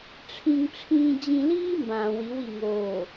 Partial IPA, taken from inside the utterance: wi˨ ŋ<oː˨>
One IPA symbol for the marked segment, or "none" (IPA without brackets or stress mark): oː˨